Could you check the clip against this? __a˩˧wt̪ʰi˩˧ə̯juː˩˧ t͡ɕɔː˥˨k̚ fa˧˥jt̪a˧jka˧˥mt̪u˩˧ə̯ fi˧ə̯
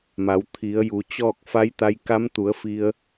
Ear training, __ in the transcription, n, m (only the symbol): m